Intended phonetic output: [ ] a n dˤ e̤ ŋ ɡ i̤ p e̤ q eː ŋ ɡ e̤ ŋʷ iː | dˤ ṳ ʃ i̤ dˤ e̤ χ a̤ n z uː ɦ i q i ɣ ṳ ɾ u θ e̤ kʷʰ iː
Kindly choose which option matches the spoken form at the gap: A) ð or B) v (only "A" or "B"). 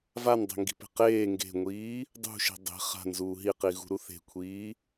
B